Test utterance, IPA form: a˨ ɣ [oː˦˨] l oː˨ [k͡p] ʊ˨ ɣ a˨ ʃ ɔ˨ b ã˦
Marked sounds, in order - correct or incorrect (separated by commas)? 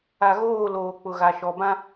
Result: correct, correct